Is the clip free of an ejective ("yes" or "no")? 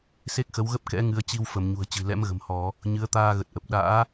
yes